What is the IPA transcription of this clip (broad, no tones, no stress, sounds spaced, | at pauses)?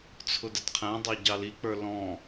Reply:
t͡sʰ ʊ d ə d qʰ æ̃ dˤ ɑ ɟ ɑ l i k͡p ə˞ l ɔ̃